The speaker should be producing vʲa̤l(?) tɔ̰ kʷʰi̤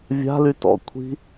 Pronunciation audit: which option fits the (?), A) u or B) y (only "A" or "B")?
B